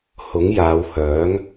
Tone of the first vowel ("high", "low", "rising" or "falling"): rising